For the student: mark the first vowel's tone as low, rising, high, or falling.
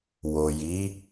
low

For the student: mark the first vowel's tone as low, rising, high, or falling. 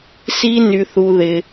high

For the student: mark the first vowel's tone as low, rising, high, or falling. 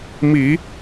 low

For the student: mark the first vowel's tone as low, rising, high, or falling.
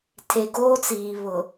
low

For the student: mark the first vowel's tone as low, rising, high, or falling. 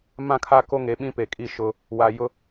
falling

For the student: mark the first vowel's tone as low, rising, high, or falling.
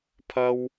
high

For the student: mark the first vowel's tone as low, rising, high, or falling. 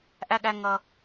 high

